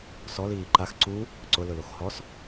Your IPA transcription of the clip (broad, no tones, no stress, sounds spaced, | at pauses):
s ɔ l iː ǃ a x ǀ u | ǀ ʊ l ʊ l o x h ɔ s